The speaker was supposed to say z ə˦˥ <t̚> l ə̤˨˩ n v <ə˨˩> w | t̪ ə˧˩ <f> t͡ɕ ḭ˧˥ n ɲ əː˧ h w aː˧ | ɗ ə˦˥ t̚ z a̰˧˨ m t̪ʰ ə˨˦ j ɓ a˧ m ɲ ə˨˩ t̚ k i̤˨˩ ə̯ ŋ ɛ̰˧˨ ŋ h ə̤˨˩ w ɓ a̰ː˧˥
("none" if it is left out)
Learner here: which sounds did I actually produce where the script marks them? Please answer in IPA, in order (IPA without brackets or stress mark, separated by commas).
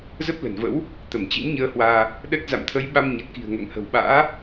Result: p̚, ə̰˧˥, m